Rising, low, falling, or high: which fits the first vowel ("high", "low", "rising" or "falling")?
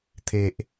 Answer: low